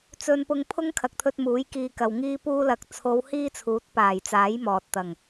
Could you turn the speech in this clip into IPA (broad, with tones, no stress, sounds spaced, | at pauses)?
t͡s ɵ˧ n p ʊ˧ ŋ pʰ ʊ˥ ŋ kʰ ɐ˨ k̚ t̪ʰ ɵ˧ t̚ m uː˨˥ j k iː˧ k ɐ˨ w ŋ iː˥ p uː˥ l ɐ˨˥ k̚ t͡sʰ o˨˧ w h iː˥ t͡sʰ uː˨˥ t̚ p aː˨˩ j t͡s aː˨˥ j m ɔː˨ t̚ t̪ ɐ˨˩ ŋ